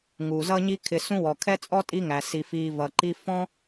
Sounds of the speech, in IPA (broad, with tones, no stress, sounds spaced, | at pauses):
ŋ u˩ z ʌ˦ ɲ i˦ kʰ ɪ˨ s ũ˦ w ɔ˩ kʰ ɛ˥ t͡sʼ ɔ˥ tʼ i˦ ŋ æ˩ s i˩ f iː˨ v ʌ˩ ǃ i˦ f ɔ̃˥